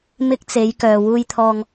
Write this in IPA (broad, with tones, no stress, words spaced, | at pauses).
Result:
mɪ˧k̚t͡se˨˧jkœː˨ wuː˧jt̪ʰɔː˧ŋ